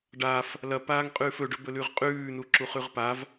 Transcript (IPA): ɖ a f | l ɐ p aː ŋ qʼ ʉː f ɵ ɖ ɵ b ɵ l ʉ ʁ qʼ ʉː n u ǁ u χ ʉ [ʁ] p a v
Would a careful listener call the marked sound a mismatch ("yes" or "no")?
no